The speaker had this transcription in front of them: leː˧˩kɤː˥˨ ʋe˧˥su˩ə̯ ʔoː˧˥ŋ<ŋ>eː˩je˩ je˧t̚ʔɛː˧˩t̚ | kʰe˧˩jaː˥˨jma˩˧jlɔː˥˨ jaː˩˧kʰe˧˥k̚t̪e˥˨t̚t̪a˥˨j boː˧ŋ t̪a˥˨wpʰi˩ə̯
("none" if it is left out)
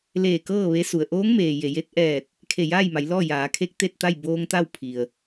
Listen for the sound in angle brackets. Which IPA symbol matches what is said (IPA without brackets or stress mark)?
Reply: m